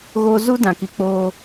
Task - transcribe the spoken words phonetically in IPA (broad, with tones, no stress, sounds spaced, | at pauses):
ɣ o˦ z u˦ d ã˨ k i˨ k͡p oː˦